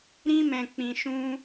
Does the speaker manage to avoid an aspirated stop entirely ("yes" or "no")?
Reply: yes